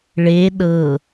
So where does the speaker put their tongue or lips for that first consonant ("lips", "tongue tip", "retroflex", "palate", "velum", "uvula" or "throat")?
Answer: retroflex